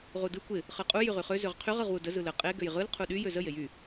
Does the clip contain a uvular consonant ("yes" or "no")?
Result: yes